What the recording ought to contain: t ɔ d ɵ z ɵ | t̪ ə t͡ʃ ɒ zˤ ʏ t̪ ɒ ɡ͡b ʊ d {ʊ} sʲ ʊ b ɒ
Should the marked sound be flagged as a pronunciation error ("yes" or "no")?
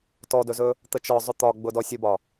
yes